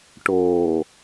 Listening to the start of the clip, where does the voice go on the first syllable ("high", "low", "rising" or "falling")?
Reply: low